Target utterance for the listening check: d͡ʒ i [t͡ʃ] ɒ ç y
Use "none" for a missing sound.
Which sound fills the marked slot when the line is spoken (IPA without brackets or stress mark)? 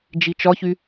t͡ʃ